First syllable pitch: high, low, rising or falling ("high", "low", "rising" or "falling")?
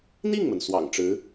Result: falling